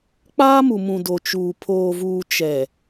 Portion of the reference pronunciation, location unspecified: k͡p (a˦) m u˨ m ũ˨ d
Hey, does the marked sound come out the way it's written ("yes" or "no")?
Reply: no